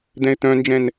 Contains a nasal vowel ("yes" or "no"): yes